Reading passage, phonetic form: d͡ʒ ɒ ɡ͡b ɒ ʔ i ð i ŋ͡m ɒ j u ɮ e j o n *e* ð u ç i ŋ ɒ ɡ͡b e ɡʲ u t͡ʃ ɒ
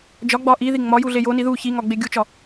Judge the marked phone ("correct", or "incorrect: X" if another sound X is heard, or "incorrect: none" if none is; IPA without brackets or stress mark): incorrect: i